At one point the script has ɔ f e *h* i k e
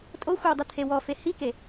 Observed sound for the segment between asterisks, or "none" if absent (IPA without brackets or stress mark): h